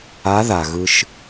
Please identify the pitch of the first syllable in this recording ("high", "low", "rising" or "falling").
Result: rising